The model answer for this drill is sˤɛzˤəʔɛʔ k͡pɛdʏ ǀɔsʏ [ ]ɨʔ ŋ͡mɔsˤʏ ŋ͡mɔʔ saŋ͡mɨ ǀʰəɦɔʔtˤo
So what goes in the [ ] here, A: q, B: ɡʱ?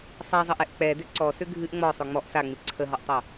B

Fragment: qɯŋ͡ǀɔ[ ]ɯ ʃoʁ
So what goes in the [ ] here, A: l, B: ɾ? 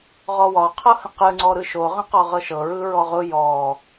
B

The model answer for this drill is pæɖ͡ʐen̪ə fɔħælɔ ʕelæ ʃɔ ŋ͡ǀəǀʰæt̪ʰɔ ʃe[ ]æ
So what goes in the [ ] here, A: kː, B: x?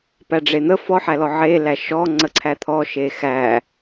B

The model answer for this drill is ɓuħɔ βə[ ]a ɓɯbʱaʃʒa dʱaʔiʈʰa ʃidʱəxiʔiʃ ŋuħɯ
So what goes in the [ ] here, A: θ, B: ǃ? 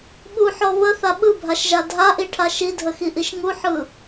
A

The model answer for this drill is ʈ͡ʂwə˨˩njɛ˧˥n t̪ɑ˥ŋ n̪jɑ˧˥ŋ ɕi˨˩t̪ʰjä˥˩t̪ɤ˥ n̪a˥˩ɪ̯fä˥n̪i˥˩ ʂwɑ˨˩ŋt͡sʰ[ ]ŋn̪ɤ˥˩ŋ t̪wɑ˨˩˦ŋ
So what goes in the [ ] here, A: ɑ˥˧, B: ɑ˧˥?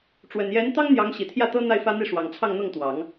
A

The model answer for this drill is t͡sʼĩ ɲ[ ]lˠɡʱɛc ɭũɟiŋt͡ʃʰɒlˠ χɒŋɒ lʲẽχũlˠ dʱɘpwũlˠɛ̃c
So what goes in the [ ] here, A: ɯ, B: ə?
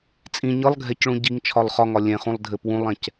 A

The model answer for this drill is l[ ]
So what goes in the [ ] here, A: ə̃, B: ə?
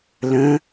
A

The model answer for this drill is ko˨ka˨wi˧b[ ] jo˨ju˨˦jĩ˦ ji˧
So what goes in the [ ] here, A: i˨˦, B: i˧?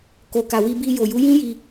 B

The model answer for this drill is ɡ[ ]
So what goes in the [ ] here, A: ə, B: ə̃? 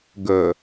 A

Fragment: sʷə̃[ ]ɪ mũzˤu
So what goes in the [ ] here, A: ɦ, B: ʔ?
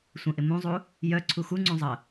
B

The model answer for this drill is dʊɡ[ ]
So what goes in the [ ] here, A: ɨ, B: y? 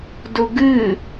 A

